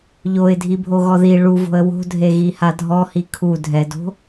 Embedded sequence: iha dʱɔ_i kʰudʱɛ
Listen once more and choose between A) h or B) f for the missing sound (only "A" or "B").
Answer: A